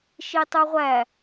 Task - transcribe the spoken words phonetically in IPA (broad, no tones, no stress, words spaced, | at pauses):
ʃitˤuʁʷæ